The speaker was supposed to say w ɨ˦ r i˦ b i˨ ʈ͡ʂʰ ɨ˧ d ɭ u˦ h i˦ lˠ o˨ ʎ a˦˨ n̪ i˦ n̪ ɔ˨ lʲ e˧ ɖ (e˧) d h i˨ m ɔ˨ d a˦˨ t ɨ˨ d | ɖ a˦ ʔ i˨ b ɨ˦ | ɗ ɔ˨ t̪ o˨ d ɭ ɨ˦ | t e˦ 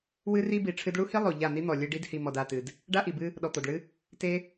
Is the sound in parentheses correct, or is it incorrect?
incorrect